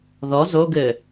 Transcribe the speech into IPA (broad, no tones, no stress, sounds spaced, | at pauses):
ð ɔ z o ɡ ɘ